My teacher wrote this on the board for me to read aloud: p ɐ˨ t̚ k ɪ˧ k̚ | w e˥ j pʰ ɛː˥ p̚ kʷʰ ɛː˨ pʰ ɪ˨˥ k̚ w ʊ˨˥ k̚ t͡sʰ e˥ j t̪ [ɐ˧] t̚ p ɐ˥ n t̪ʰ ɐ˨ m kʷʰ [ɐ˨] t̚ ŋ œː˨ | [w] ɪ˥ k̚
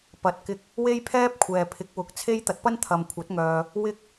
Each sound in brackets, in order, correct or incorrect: correct, incorrect: ɐ˨˥, correct

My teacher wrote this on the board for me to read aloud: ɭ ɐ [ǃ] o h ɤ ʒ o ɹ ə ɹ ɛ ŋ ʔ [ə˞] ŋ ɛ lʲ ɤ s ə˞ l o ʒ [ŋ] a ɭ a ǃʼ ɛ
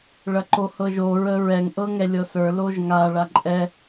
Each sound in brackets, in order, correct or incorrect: correct, incorrect: ɤ, correct

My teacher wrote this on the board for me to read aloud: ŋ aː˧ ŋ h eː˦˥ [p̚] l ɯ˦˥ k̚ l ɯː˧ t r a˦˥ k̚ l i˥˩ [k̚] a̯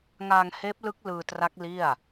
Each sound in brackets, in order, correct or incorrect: correct, incorrect: none

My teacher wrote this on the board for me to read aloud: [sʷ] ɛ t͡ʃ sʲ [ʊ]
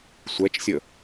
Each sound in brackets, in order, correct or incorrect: correct, incorrect: ə

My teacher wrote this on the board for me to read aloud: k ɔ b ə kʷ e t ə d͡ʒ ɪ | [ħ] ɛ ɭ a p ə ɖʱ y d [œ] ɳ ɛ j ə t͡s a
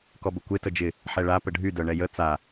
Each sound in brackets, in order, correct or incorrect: correct, correct

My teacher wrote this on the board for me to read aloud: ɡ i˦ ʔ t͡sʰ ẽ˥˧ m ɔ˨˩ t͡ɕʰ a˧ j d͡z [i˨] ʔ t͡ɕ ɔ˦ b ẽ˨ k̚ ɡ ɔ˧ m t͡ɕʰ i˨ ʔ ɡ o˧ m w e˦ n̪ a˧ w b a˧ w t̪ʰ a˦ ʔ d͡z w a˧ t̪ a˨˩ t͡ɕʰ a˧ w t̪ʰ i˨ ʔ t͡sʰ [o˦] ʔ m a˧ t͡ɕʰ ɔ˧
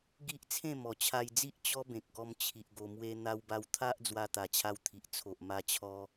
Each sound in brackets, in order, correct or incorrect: incorrect: i˦, incorrect: o˨

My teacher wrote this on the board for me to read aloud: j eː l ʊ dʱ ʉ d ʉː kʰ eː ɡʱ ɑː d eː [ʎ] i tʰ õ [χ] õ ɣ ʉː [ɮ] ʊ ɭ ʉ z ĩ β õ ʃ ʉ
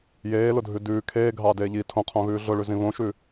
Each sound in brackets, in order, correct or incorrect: correct, incorrect: qʰ, correct

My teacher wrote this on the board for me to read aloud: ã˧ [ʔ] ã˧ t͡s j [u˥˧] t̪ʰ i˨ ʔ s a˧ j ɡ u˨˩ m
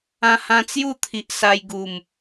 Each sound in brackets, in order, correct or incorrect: incorrect: h, correct

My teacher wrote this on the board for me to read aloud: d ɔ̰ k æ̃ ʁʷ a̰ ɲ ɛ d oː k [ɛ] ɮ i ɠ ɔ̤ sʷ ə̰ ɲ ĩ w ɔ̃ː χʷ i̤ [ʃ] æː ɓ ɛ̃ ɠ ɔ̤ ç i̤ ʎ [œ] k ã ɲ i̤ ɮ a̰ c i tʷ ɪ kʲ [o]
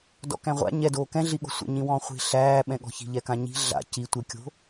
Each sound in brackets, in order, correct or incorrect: incorrect: ɛ̃, incorrect: ɬ, incorrect: ɛ, incorrect: o̤

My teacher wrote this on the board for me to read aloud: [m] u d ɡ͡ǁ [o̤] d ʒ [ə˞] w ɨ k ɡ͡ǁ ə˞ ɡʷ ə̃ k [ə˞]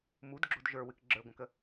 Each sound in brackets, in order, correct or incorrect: correct, correct, correct, incorrect: ə

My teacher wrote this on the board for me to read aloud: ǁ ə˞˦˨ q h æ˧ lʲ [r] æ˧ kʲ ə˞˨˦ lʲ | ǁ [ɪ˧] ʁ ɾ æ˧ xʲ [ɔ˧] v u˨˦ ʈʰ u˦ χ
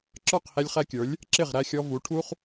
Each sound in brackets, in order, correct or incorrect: incorrect: χ, incorrect: ɪ˦˨, correct

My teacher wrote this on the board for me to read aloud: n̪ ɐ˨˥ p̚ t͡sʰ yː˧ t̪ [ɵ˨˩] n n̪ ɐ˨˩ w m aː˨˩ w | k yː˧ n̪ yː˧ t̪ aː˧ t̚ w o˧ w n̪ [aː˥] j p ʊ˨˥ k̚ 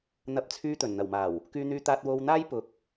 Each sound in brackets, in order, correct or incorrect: correct, correct

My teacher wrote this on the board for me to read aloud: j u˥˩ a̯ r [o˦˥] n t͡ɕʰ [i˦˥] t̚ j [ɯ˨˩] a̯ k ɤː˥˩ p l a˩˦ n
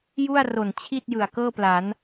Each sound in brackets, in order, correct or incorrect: incorrect: o˨˩, incorrect: i˥˩, correct

